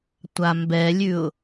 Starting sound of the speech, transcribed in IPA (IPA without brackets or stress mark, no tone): tʷ